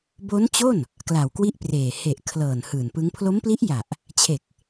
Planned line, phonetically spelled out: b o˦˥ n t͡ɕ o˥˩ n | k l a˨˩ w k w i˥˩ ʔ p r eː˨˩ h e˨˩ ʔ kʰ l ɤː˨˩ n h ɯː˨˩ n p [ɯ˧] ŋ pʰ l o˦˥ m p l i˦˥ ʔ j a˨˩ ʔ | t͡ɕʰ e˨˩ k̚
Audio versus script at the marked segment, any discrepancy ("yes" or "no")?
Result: yes